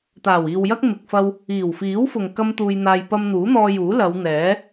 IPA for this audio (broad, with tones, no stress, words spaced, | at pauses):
t̪aː˨˩wiː˨wjɐ˥k̚ mɪ˨k̚fɐ˧w | iː˨˩wfiː˨˥wfʊ˨ŋ kɐ˥mt̪uː˧jn̪aː˧j pɐ˧mn̪uː˨˥n̪ɔː˧ juː˨˥lɐ˨˧w n̪ɛː˨˥